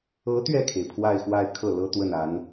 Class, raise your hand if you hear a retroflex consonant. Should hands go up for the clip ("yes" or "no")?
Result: no